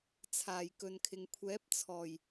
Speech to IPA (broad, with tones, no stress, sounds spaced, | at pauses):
t͡sʰ aː˨˩ j k ɵ˨ n kʰ ɪ˨ ŋ kʷʰ ɛː˨˥ p̚ t͡sʰ ɔː˨˩ j